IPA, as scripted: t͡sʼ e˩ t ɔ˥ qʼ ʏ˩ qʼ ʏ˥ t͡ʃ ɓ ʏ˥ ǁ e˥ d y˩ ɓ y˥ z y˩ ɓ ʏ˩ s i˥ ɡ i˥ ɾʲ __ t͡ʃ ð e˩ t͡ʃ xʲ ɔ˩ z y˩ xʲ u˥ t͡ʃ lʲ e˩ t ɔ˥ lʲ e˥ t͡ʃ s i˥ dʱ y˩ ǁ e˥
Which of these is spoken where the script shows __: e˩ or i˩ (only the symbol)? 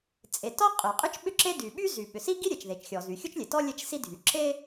e˩